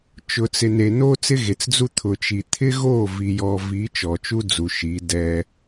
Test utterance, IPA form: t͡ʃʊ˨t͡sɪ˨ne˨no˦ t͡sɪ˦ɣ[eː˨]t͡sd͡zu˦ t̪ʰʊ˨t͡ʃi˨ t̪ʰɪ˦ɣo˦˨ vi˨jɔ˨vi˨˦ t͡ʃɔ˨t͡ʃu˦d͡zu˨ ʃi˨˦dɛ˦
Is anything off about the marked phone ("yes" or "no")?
yes